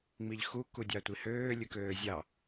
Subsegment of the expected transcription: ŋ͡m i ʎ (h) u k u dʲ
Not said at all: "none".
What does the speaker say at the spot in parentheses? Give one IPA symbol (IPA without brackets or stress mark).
x